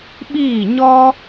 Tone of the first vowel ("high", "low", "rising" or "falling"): falling